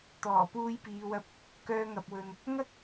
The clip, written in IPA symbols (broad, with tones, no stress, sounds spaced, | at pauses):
t̪ ɔː˨˩ p uː˧ j p iː˨˧ w ɐ˧ p̚ | k œː˧ ŋ ɐ˨ p̚ w ɵ˨ n | ŋ ɐ˥ k̚